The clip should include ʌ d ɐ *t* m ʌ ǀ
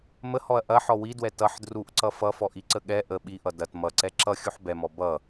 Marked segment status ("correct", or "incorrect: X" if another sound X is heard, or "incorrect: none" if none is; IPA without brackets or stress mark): correct